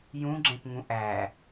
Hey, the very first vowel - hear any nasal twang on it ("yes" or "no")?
yes